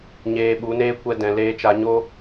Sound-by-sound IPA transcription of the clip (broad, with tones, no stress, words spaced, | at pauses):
ɲeː˧ɓu˨˦neː˦ kʷɛ˧dɛ̃˨ leː˧t͡ʃa˧ɲo˦